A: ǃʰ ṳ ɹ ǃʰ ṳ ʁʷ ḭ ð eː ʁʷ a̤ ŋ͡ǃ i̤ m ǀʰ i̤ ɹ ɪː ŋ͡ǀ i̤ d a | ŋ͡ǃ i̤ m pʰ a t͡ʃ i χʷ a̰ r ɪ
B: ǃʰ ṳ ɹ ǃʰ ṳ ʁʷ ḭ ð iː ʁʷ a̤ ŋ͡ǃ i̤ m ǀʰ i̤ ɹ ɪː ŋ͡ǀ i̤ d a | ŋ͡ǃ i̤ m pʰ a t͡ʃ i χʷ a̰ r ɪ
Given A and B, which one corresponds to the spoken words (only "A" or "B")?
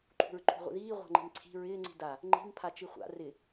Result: B